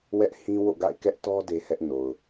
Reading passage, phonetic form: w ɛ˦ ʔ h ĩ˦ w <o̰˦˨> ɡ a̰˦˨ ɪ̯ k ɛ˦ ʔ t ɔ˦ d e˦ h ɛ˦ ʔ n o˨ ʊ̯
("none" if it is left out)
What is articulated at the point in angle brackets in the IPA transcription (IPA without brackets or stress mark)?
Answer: o̰˦˨